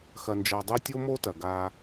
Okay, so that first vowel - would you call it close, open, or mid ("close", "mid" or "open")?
open